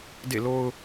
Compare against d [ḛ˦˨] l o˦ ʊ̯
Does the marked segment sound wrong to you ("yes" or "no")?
no